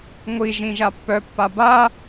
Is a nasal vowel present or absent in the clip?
present